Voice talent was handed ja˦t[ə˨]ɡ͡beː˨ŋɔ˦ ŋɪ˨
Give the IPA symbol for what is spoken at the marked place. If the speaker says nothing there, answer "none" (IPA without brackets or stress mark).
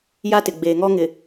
ɪ˨